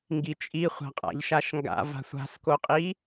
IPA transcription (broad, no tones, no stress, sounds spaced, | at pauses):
ŋ ɡ i t͡ʃʼ i χʷ a̤ qʼ a̰ ʎ ʃ a ʃ ŋ ɡ a̰ v a̤ sʷ a̤ s k o qʼ i